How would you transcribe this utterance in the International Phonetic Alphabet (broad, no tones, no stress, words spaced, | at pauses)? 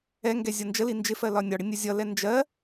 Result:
ɛŋɡɛ zʲʌnd͡ʒəli nd͡ʒɪfɜ lɒnʲɒɽɪ nʲəzʲʌlɛ nd͡ʒɜ